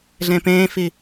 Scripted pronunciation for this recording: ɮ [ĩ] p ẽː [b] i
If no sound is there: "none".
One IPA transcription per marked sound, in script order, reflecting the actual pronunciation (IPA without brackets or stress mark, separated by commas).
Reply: ẽ, f